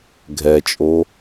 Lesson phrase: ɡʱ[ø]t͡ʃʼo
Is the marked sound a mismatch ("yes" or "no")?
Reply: yes